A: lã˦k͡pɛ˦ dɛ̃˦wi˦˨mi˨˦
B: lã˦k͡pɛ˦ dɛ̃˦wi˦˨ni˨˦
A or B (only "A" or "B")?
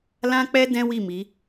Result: A